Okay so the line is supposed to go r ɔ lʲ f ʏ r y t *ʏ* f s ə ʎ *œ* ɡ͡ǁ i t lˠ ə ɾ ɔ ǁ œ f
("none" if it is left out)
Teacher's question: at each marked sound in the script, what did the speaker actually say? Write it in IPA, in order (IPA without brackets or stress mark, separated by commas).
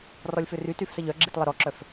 y, œ